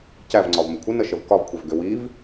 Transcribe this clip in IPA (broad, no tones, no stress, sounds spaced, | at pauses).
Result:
c æ v ŋ͡ǀ ɒ v m ə kʷʰ ə n ə ʃ ə v k ɒ v kʷʰ ɛ v ɡ ʏ w i v